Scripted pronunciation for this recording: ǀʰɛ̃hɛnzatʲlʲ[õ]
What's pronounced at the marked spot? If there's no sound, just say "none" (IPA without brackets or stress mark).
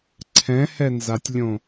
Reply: õ